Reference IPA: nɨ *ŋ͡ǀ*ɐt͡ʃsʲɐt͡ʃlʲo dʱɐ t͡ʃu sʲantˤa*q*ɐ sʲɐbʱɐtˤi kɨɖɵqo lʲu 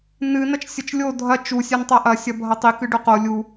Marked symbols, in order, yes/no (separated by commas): no, no